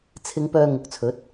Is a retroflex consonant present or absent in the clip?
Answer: absent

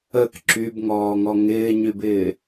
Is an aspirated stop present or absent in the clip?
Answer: absent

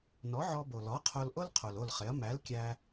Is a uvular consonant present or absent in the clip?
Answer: present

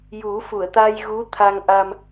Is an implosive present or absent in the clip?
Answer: absent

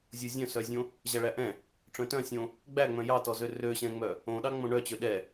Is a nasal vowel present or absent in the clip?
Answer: present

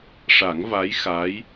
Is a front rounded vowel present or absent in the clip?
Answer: absent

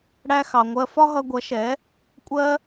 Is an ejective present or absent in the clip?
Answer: present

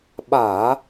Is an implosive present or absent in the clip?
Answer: present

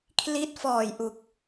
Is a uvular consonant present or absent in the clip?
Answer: absent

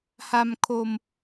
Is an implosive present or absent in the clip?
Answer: absent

